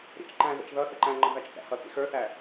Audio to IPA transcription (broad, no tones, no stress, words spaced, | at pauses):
ɾḭt͡ʃǃæ̃ɣə̰t͡ʃ ðʌ θəǃæ̃ŋ͡ǃə̃ væt͡ʃt͡sæ̰hʌt͡sḭ xə˞θæ